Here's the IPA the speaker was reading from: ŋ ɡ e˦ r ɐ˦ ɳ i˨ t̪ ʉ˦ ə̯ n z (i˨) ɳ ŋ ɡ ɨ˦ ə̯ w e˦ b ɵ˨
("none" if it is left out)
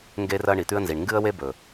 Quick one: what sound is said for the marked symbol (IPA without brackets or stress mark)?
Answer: i˨